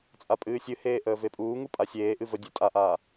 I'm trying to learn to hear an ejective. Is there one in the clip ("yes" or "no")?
yes